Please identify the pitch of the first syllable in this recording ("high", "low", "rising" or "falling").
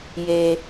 low